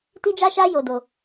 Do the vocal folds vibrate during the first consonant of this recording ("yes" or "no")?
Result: no